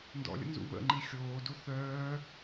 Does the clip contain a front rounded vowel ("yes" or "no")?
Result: yes